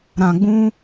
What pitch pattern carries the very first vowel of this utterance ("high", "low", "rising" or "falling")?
low